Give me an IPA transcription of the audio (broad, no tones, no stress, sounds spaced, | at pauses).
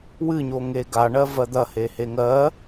w ɨ ɲ o ŋ e ɡ a ɳ ɜ v ɜ d̪ ɐ h e h e ŋ ɜ